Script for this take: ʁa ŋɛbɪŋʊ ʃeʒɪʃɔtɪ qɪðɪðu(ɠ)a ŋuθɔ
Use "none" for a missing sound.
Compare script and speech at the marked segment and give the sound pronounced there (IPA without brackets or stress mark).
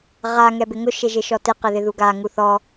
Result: ɡ